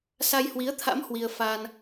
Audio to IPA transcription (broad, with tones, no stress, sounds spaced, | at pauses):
s a˧ j h w i˨˦ ə̯ t̪ʰ a̰˧˥ m h w i˧ ə̯ f aː˧ n